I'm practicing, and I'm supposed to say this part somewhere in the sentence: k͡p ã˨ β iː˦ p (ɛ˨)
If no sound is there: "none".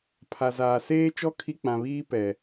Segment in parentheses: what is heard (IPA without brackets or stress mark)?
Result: ɛ˨